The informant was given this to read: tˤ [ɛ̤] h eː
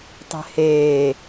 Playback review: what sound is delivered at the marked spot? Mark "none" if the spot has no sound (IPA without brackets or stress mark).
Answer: ɛ̤